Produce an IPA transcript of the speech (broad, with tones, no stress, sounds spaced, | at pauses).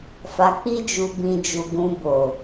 f a˧ k͡p i˦ d͡ʒ u˧ b ĩ˧ d͡ʒ u˧ ɡ ũ˧ b o˨